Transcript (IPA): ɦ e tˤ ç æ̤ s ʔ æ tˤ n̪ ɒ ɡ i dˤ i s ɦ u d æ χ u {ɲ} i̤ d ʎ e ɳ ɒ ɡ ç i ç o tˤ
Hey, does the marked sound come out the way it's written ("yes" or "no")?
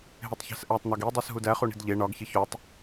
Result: no